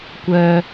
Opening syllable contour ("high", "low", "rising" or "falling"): low